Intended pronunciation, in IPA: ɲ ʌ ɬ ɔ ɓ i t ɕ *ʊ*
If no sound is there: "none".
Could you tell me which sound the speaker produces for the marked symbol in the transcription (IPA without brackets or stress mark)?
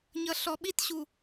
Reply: u